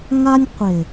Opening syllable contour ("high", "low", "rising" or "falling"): high